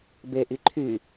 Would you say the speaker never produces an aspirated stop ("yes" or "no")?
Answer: no